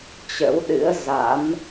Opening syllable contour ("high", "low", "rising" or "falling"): rising